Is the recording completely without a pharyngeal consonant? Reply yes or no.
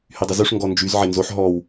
no